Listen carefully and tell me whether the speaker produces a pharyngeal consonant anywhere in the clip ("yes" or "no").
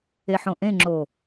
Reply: yes